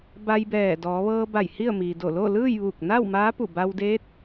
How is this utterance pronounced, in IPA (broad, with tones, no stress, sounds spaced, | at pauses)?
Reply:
b a˧ j b ɛː˧˩ d ɔː˩˧ ʋ ɤː˧ b a˧˩ j h i˥˨ ə̯ m iː˩ d o˧˩ l o˥˨ l ɯː˥˨ j ʋ uː˧˩ k̚ n a˥˨ w m aː˧˥ p u˧˩ b a˧ w d eː˧˥ t̚